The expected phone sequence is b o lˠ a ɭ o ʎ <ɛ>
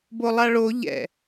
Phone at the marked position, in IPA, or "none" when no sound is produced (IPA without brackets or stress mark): ɛ̰